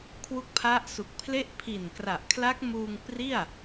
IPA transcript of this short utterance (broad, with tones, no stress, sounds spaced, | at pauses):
kʰ w u˦˥ k̚ pʰ a˦˥ ʔ s u˨˩ k̚ pʰ l e˥˩ ʔ pʰ i˨˩ n k r a˨˩ ʔ kʰ l a˦˥ k̚ m uː˧ ŋ p r i˥˩ a̯